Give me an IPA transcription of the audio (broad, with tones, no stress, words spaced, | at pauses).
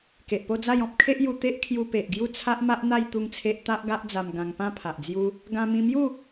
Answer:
ke˨ʔpo˥˧d͡za˥˧j ɔ̃˦p̚kʰe˦ʔju˧t̪e˦ʔ kʰju˧pe˨ʔɡju˦ t͡sʰa˦ʔma˦ʔn̪a˥˧j t̪u˥˧ŋt͡sʰe˦ʔ t̪a˦ʔɡa˦ʔd͡za˧m ɡã˧ŋpã˥˧pʰa˨ʔd͡zju˦ | ɡã˧mĩ˧mju˥˧